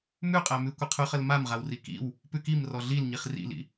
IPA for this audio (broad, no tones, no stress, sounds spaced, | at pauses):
m ʉ qʼ æ m ʉ kʷ ə qʰ ʉ χ ə l m a m ʁ a w r i k ḭ w | p ʉ k i m r ɔ ɮ i l ɲ i χ r ḭ l ḭ